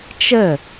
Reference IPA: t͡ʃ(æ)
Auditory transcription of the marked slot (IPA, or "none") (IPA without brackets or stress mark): ə